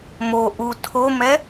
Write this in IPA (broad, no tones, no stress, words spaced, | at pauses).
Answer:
mo ʔu tʰomɛ